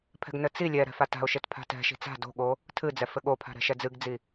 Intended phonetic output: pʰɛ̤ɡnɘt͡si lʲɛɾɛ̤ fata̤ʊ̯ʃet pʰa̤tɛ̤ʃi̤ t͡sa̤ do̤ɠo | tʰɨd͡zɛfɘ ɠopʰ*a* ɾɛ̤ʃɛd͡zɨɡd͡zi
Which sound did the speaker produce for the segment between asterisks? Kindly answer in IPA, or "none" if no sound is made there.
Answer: a̤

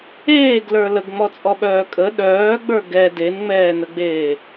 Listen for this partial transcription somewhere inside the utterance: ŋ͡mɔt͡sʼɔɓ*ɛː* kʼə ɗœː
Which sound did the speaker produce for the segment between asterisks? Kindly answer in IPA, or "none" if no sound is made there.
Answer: œː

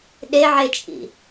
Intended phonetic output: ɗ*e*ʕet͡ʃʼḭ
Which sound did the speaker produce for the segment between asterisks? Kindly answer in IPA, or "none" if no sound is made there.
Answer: e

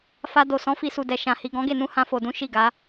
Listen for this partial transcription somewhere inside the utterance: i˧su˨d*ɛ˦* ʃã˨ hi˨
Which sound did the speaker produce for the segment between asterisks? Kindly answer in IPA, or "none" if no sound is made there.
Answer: ɛ˨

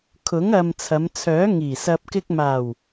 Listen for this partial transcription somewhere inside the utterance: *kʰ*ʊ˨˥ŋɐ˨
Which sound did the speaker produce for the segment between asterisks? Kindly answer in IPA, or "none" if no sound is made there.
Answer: kʰ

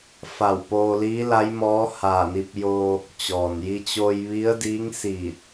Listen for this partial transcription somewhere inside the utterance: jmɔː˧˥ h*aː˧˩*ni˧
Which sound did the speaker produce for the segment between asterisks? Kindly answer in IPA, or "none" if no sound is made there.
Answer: aː˧˩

